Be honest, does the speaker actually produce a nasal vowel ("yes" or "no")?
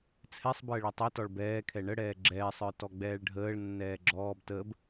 no